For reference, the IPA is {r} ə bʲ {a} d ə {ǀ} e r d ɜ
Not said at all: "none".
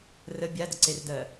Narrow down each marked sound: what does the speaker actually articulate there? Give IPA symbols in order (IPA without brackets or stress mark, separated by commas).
r, a, ǀ